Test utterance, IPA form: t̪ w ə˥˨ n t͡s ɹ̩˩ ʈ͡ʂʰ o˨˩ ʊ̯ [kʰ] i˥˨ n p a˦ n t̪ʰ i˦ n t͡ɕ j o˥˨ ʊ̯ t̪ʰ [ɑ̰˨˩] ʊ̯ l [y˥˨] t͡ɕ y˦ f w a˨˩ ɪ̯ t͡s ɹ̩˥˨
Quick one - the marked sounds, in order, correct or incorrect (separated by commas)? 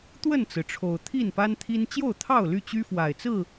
incorrect, incorrect, correct